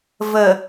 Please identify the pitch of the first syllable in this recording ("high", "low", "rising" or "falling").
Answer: low